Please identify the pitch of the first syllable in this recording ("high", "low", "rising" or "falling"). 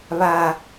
low